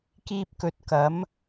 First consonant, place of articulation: velar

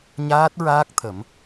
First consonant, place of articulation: palatal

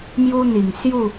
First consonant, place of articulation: labial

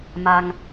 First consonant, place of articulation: labial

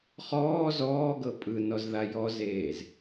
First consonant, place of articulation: uvular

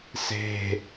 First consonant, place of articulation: alveolar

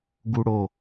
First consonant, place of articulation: velar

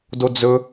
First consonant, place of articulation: alveolar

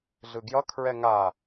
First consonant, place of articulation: alveolar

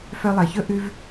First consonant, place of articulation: labial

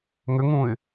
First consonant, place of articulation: velar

